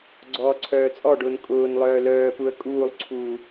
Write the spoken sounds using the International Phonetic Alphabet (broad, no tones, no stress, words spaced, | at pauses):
ɡ͡ǀɔːǀʰœːt͡sʼɔɖʊːn kʼʊːnlˠœː lœːpuə̯ kʼuːlˠǀʰuː